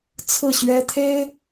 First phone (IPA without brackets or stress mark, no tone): t͡sʰ